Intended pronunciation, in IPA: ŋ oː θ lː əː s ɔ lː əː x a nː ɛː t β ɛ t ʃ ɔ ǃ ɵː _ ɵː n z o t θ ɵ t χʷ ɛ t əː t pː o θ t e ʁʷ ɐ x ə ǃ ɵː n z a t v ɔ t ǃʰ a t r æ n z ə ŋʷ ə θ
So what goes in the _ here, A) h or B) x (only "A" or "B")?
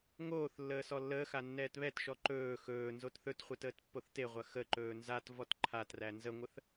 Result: B